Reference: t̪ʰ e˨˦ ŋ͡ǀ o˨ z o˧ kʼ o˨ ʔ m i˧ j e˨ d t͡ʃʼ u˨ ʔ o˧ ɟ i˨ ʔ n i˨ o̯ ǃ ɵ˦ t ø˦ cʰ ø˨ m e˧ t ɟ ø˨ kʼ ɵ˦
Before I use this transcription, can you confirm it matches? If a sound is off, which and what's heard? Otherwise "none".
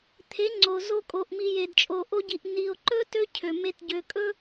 u˨ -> o˨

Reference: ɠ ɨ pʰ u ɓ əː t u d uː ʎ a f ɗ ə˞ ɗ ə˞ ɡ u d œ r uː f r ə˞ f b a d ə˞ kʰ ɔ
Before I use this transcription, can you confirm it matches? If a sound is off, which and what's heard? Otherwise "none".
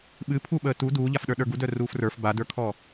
ɠ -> ɓ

